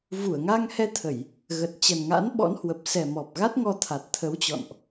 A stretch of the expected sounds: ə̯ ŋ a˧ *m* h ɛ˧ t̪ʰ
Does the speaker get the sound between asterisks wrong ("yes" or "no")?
yes